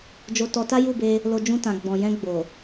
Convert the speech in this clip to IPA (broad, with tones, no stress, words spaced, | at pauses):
d͡ʒo˧tɔ˧ ta˦ju˦˨be˧ | lo˧d͡ʒũ˧tã˨ ɡ͡bɔ̃˨jɛ̃˧ ɡ͡bo˨